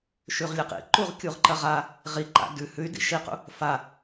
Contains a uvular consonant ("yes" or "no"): yes